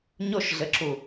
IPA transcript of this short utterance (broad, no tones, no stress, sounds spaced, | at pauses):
ɲ o ʃ ɮ ɘ ǁ u